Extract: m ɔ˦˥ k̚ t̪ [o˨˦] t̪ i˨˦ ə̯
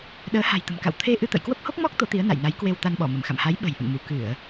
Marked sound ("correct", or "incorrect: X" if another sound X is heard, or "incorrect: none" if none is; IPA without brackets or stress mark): correct